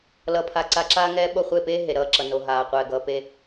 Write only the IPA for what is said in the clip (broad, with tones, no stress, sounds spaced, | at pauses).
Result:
l ʌ˧ pʰ a˧ ǀ a˧ ǁ aː˦ ŋ ɛː˦ ɓ o˦˨ χʷ e˦˨ p eː˦ ɦ e˨ ɾ ʌː˦˨ ǁ ʌ˨ n o˨ ɦ aː˨ qʷ ɛː˨ ɡ ʌː˨ p e˧